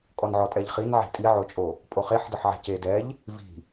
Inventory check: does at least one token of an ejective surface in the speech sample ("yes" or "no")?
yes